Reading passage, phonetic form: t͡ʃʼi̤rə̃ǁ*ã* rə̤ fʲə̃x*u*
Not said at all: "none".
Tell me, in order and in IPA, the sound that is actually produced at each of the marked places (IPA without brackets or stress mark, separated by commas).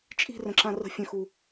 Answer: ã, u